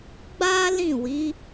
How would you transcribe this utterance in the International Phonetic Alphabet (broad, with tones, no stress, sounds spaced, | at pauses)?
ɡ͡b a˦ l ĩ˦˨ w i˨˦